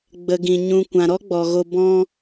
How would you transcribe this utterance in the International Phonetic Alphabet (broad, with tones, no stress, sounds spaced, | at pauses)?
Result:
ɡ͡b ə˨ ɡ ĩ˨ ɲ ũ˨ kʷ ã˨ ɾ ɔ˦ ɡ͡b ɔ˨ ɣ o˧ b ɔ̃˦